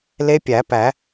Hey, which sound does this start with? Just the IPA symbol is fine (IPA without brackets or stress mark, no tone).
l